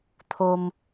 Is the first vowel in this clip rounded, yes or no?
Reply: yes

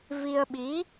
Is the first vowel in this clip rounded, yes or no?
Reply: no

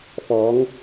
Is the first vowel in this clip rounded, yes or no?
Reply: yes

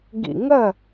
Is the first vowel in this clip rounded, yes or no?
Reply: no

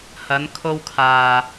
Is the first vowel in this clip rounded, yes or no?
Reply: no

